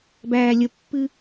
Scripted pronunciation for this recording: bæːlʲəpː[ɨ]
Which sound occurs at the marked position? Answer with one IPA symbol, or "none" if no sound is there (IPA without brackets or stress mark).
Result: ɨ